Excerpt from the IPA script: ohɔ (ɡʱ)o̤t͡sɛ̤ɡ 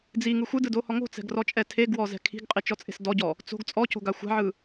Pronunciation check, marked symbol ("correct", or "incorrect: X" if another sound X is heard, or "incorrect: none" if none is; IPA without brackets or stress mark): incorrect: ŋ